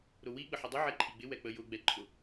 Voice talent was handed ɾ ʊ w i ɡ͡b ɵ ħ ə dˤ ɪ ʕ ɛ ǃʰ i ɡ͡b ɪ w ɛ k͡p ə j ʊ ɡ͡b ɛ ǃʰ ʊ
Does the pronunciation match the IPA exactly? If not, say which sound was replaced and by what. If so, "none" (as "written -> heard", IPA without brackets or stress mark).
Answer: ɵ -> ə